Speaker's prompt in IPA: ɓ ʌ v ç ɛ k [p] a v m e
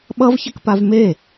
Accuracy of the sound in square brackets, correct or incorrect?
correct